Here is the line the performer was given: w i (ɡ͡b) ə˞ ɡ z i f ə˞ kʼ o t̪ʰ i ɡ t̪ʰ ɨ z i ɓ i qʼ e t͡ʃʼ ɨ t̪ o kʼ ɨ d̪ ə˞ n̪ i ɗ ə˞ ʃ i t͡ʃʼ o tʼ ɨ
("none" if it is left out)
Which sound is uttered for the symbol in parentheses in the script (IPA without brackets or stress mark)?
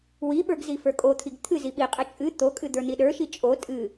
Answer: ɓ